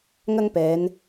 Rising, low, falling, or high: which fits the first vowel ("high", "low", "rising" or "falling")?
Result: high